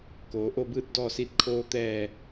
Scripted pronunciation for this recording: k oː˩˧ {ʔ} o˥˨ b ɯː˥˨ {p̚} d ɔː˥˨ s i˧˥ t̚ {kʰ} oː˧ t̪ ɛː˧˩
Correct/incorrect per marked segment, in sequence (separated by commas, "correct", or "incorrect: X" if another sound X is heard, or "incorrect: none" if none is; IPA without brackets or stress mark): correct, incorrect: t̚, correct